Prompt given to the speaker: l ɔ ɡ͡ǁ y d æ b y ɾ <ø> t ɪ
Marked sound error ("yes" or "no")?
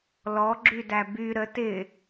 yes